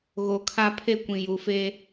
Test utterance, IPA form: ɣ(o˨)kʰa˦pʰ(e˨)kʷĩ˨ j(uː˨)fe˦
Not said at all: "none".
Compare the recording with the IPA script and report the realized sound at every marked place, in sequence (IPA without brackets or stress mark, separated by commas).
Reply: o˨, e˦, u˨